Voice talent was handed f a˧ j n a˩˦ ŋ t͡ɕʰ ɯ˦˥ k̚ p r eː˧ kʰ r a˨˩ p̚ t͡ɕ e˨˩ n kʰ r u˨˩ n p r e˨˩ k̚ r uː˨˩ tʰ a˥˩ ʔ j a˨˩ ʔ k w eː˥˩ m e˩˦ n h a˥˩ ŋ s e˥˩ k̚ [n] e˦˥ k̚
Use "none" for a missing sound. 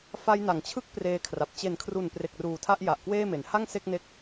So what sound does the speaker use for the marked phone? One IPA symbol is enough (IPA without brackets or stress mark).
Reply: n